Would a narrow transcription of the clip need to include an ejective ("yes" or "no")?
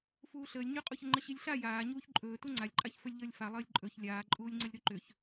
yes